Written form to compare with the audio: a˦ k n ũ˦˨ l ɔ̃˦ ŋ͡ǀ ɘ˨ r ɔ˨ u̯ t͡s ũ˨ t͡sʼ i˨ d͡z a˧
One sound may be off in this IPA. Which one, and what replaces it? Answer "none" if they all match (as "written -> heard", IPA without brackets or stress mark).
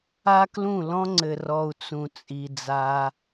n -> l